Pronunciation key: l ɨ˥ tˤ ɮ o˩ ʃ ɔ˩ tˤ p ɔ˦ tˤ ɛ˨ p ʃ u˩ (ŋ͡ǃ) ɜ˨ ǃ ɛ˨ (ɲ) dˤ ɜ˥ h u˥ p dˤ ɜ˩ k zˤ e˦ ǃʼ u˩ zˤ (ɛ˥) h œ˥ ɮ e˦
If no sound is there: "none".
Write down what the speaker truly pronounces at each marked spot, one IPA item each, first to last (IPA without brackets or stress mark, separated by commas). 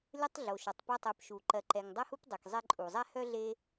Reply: ǃ, ŋ, ɛ˥